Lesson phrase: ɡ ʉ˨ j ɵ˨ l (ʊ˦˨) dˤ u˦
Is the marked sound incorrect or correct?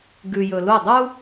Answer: incorrect